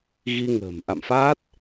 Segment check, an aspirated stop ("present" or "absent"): absent